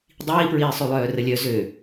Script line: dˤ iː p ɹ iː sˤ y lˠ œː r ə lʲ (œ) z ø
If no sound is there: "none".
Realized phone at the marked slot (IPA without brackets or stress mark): œ